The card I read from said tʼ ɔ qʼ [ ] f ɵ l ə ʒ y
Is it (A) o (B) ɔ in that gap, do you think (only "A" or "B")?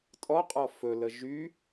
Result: B